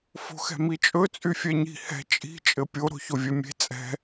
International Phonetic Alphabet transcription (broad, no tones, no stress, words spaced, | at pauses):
fo̤xɛ̤mit͡ʃʼɵ t͡sʼyfʲɛɲi̤ hɛ̤ t͡ʃʼi̤ t͡ʃʼɘpʲo ɾo̤çovʲɛmʲe̤ t͡sʼɛ̤